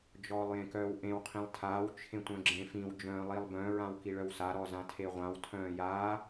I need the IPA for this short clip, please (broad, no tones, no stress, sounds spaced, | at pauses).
d͡ʒ ɔː lˠ j ẽ k œː w ʔ ẽ w qʰ ĩ lˠ tʰ aː w t͡ʃʰ ẽ tʷ œ̃ ɡ͡ǁ ẽ f ĩ w d͡ʒ œ̃ː lˠ i lˠ b œ̃ ɹ ã w k i ɭ œ w s a ɾ ɔ z ã tʰ e ʁʷ ã w tʰ œ̃ː j aː